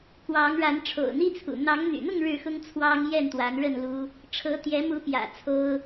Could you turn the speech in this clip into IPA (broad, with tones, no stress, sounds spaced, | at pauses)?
k w ɑ˨˦ ŋ ɻ a˨˦ n ʈ͡ʂʰ o̰˨˩ ʊ̯ n̪ i˦ t͡sʰ ṵ˨˩ n̪ ɑ˨˦ ŋ n̪ y̰˨˩ n̪ ʊ˥˨ ŋ ɻ ɻ̩˥˨ x ʊ˦ ŋ t͡sʰ w ɑ˦ ŋ j ɛ˥˨ n t̪ w a˨˦ n ɻ ə˥˨ n l u˦ | ʈ͡ʂʰ ɤ˨˦ t̪ j ɛ˨˦ m u˨˦ p j ä̰˨˩ t͡sʰ o˦ ʊ̯